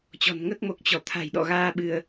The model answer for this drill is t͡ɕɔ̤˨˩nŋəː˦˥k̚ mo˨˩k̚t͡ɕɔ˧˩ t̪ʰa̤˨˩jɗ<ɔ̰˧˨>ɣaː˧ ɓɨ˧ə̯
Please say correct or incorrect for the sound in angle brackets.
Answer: correct